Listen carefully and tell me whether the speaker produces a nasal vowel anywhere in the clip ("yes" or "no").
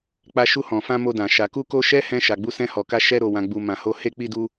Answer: yes